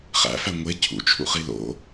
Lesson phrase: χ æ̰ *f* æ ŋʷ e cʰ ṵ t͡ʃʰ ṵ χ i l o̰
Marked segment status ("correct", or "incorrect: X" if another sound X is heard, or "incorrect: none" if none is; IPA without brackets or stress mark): correct